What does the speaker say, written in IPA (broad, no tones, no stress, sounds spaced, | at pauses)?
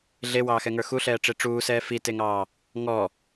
ɮ e w ɑː x ɛ ŋ ə˞ x u ɬ ɛː ʈ͡ʂ e ʈ͡ʂ uː s ɛː f i t e ŋ ɑː | ŋ ɔ